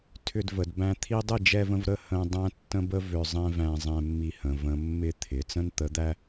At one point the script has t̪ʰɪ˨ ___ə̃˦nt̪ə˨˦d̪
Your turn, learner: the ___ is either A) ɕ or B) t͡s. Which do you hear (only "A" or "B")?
B